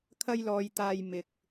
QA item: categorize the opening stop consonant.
aspirated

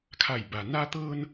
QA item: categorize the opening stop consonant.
aspirated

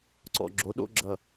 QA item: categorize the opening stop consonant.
click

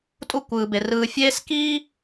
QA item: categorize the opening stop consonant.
ejective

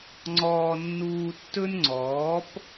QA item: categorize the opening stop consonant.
click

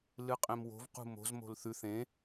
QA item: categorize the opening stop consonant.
ejective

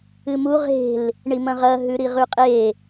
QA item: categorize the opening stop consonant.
ejective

